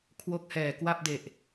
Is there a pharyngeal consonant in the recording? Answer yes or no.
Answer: no